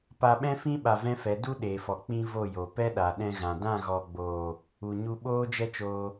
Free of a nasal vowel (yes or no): no